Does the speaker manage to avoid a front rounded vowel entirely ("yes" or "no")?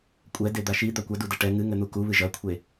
yes